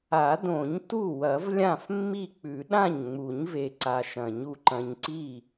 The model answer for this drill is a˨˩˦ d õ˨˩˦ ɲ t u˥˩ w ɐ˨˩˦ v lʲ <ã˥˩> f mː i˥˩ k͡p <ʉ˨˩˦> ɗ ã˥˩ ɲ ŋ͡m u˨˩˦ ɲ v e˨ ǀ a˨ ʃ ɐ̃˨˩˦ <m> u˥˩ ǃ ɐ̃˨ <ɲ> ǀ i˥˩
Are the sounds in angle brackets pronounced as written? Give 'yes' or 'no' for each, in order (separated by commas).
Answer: yes, yes, no, yes